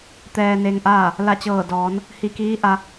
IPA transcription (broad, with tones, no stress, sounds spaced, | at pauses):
t̪ ɛː˧ n e˧ ŋ ʔ aː˥˨ | l a˧˩ t͡ɕ ɤː˧˩ d ɔː˩˧ n | h i˧˩ k iː˧˥ ʔ a˧